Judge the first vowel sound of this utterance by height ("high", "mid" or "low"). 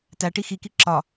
low